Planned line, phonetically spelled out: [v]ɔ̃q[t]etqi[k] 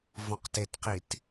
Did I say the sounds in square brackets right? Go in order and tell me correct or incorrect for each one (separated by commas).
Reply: correct, correct, incorrect